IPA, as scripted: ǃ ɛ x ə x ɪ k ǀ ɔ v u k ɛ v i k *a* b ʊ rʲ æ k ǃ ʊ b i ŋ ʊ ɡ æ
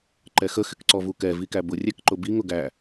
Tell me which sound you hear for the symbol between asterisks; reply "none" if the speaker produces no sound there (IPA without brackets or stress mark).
æ